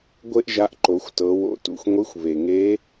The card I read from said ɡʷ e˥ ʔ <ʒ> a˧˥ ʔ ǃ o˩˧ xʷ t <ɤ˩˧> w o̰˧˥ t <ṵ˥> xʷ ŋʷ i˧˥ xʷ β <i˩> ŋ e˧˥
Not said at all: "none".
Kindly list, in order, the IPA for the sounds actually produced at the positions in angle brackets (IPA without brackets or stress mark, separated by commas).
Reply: ʒ, ɤ˩˧, ṵ˩, e˩